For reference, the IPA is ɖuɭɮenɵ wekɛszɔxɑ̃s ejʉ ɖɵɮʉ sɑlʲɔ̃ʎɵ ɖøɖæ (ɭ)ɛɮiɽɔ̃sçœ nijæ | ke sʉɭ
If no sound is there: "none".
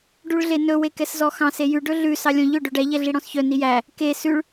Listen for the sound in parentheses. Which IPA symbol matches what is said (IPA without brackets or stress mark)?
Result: ʎ